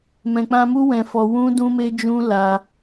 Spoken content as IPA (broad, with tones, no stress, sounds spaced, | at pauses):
m ɛ̃˨ k͡p ã˧ m u˦ w ɛ̃˧ f ɔ˧ w ũ˦ d ũ˦ m e˦ d͡ʒ ũ˦ l a˧